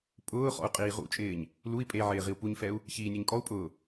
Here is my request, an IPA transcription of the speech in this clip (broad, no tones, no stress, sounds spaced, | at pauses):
pʼ ʊː χ ɔ̰ u̯ qʼ iː ʁ ṵ t͡ʃʼ ɪː ɲ | l u i̯ pʼ e ʕ ɪː ʁ i u̯ p u ɲ f ɛ u̯ | ç iː nʲ e ɲ kʼ ɔ u̯ pʼ ʊː